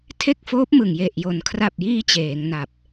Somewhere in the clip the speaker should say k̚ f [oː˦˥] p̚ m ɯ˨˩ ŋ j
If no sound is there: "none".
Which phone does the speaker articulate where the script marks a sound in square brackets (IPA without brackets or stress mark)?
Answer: oː˦˥